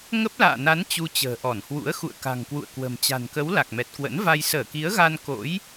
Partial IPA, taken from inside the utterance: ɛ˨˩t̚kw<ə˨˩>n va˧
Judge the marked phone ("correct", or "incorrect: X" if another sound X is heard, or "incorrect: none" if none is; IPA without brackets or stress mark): incorrect: ə̰˧˥